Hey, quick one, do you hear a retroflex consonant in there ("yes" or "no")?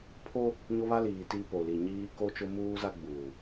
no